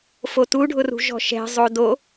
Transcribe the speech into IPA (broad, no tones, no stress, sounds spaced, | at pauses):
f o t u ɖʱ ʊ r ṳ ʒ ɔ̤ ʃ ɛ̤ zˤ o d o